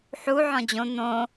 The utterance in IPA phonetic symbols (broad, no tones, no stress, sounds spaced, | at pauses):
ħ u ʕ ɔ̃ d͡ʑ õ n̪ õ